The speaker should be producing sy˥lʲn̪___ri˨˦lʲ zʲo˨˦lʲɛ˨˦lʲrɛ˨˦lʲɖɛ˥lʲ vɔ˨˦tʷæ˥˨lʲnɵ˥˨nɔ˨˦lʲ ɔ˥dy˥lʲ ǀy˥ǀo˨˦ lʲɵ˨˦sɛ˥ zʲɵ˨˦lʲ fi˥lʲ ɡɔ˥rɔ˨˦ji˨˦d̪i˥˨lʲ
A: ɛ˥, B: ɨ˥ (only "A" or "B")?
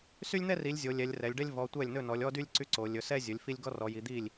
A